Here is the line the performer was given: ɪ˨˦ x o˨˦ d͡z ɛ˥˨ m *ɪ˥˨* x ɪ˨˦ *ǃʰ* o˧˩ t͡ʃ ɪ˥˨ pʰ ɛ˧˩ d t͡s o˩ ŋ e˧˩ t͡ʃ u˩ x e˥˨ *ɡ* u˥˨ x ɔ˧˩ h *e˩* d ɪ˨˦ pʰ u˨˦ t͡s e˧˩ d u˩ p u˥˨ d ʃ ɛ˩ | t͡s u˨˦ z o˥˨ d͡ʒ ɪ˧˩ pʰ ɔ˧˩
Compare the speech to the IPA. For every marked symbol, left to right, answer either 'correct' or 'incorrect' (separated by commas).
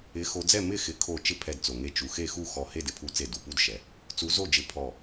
correct, incorrect, incorrect, incorrect